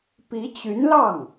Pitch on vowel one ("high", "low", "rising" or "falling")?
rising